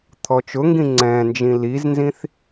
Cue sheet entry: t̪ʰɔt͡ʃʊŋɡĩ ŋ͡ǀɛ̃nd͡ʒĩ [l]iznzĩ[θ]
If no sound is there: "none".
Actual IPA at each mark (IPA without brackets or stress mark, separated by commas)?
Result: l, θ